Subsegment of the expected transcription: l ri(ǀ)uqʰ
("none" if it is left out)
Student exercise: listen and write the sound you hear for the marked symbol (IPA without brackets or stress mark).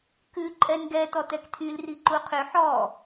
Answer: ǃ